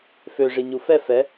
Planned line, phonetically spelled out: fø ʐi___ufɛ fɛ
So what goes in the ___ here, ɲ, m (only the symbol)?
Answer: ɲ